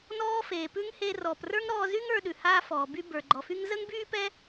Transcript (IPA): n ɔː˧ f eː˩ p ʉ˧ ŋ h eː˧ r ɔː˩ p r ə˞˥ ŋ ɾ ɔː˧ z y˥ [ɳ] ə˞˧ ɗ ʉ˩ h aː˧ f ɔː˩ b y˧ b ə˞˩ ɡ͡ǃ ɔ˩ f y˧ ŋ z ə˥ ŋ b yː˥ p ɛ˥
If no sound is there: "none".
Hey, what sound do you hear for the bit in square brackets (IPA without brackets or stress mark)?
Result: ŋ